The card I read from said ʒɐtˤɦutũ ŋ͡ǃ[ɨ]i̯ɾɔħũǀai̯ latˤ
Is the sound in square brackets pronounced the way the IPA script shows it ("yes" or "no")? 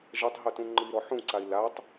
yes